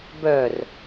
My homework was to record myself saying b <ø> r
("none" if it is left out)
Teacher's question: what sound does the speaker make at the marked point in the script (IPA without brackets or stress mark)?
œ